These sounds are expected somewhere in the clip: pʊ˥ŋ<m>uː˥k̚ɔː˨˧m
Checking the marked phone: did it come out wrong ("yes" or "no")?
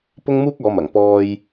no